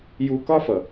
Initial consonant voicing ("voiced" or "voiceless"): voiced